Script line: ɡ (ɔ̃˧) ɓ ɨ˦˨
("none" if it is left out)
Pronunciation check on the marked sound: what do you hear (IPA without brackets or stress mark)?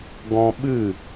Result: ɔ̃˧